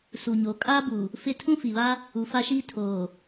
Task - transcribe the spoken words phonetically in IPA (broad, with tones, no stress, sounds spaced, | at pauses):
s u˨ ɲ o˨˦ kʼ a˦ b u˨ | f ɪ˦ tʰ ũ˦ f i˨ β a˦ | u˨ f a˦ ʃ iː˦ tʰ oː˨